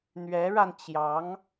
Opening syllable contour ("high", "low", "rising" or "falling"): rising